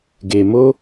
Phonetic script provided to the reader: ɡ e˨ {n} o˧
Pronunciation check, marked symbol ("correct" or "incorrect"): incorrect